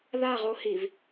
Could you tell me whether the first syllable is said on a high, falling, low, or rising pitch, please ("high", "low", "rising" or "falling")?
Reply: falling